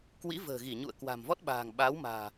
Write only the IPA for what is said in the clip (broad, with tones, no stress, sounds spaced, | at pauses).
k w ḭ˧˥ v ə̤ː˨˩ ɣ i˧˩ ɲ ṵ˧˨ ə̯ k w a̤˨˩ m v ɔ˦˥ t̚ ɓ a̤ː˨˩ ŋ ɓ a˨˦ w m a̤ː˨˩